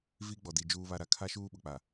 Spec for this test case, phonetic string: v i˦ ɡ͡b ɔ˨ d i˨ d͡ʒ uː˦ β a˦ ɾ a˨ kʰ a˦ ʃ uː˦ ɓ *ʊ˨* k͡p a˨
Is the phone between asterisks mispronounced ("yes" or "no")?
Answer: no